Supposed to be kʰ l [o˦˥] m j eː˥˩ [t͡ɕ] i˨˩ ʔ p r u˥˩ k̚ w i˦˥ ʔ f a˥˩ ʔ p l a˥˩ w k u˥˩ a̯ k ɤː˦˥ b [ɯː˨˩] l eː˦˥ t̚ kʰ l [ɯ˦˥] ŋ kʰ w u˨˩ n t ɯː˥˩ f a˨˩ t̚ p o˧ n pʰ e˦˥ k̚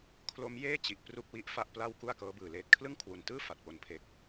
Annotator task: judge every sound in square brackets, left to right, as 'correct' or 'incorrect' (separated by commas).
correct, correct, correct, incorrect